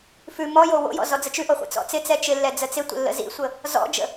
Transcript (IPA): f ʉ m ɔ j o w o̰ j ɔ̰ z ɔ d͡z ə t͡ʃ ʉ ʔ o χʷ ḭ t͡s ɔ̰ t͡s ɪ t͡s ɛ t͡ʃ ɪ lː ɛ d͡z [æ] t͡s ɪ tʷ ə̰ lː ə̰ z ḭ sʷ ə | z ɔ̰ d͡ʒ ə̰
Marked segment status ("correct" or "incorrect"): incorrect